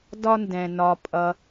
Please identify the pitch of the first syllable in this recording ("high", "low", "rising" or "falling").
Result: high